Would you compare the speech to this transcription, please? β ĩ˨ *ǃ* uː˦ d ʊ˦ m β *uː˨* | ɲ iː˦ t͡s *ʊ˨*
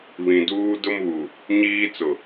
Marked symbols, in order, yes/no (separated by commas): no, no, yes